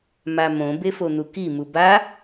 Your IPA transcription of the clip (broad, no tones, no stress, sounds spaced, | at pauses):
m a m õ b e f o n̪ u k i m u b a